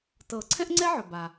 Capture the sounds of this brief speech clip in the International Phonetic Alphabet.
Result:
t ɤ˨˩˦ ǀʰ ɛ̃˥ ʔ ŋ͡ǀ ɛ˥ ʕ ɵ˩ b a˩

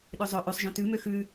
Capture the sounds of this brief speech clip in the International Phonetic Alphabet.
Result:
ɗ ø zˤ ɵ ʔ ʉ sˤ ʒ œ̃ t ʉ m ø x ʉ

